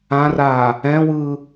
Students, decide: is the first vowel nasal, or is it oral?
nasal